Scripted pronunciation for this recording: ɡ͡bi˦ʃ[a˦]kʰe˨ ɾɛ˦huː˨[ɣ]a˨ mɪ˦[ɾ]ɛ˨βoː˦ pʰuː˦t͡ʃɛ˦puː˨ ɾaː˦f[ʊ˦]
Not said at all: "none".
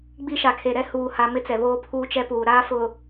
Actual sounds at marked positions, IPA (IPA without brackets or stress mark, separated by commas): a˨, h, t͡s, ʊ˨